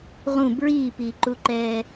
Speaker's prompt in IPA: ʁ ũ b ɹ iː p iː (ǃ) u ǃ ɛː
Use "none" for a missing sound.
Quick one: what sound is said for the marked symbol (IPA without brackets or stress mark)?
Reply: ǃ